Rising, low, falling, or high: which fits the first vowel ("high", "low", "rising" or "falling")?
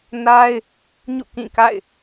high